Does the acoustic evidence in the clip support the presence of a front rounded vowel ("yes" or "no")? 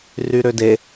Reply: yes